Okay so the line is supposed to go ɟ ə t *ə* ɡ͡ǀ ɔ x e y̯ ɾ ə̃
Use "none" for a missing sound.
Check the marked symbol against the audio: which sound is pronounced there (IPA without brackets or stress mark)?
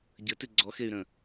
ʉ